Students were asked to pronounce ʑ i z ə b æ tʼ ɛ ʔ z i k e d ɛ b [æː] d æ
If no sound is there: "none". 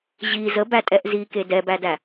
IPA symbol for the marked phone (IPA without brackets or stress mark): æ